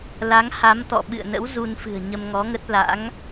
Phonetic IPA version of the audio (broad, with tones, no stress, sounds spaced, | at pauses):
l a˨˦ ŋ h a˨˦ m t̪ ɔ̰˧˨ ɓ ɨ̰˧˨ ə̯ n ə̰˧˥ w z u˧ n f ɨ̤˨˩ ə̯ ɲ ə˧ m ŋ ɔ˨˦ ŋ ə˦˥ t̚ l a̰˧˥ ŋ